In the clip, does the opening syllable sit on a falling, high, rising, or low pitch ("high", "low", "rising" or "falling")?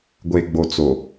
low